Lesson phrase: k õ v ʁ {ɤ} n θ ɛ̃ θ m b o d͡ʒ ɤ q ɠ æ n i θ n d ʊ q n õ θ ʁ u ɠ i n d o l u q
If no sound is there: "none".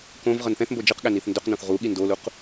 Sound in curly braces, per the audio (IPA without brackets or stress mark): ɤ